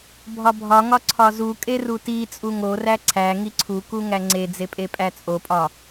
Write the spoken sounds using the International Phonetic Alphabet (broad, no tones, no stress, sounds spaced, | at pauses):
bʱ ɒ bʱ ɒ ŋ ɒ ǀʰ ɒ z u kʼ e r u t i t͡sʼ u ŋ o r æ ǀʰ æ ŋ i ǀʰ u k u ŋ æ ŋ͡ǀ e d͡z e pʼ e pʼ æ t͡sʼ o pʼ ɒ